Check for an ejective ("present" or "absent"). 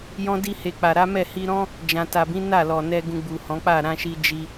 absent